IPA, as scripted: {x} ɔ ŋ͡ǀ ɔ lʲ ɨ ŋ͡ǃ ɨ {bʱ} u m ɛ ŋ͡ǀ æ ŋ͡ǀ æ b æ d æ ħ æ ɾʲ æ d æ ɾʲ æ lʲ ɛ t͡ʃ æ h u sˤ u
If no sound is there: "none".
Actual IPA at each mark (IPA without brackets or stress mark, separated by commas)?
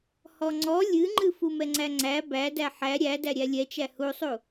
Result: h, f